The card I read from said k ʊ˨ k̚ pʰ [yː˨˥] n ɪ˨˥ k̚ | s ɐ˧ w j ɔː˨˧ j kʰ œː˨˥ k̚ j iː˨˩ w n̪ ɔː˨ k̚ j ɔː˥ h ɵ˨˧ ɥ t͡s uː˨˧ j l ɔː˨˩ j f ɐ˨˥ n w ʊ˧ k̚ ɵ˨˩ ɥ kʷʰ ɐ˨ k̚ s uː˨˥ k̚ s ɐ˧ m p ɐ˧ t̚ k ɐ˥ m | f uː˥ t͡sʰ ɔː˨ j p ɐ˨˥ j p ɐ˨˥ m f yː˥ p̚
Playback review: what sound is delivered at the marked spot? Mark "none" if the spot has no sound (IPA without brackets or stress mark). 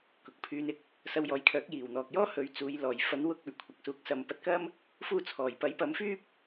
yː˧